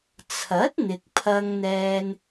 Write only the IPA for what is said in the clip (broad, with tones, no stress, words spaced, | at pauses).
t͡sʰɐ˨˥t̚ n̪ɪ˧k̚pʰɐ˥ŋn̪ɛː˥n